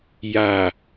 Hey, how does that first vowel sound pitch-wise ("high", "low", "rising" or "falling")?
low